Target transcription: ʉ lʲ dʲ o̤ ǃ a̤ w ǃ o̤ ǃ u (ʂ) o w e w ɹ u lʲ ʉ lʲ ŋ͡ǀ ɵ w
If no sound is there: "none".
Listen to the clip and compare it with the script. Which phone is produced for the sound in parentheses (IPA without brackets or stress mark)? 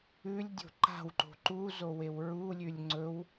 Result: z